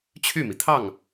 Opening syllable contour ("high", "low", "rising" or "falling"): falling